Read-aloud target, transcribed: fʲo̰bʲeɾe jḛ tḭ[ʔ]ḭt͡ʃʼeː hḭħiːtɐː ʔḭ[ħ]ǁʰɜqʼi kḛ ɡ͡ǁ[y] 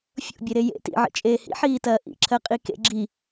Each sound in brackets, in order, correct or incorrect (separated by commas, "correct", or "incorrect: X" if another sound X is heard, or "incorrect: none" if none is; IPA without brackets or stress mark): incorrect: ʕ, incorrect: none, incorrect: i